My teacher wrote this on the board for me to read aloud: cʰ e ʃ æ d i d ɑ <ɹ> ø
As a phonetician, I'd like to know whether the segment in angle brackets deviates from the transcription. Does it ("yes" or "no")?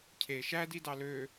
yes